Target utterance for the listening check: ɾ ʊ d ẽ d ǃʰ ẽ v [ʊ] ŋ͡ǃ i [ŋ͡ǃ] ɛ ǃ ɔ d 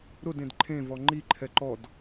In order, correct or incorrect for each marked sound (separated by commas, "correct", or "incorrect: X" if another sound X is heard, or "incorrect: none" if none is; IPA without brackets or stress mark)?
incorrect: ɔ, incorrect: ǃʰ